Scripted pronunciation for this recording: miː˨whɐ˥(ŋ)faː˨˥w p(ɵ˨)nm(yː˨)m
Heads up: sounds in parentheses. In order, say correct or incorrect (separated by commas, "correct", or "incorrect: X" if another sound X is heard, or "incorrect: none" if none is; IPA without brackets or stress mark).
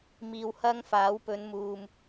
correct, incorrect: ɵ˨˧, incorrect: uː˨